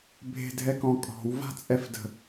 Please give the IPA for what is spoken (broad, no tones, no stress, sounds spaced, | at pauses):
bʱ e̤ dʱ ɛ k ɔ̃ kʼ ɔ̤ w v a̤ t͡sʼ ɛ f d ə̤